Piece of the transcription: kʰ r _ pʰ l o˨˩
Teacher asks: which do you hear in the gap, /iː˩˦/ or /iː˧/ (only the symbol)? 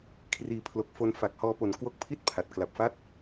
iː˩˦